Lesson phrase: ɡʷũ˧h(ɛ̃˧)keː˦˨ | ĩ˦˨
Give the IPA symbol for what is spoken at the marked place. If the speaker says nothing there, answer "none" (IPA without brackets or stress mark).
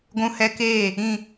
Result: ɛ˧